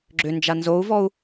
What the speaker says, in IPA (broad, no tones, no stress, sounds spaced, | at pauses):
ɡ͡ǁ ʏ n d͡ʒ a n z o u̯ v ɔ u̯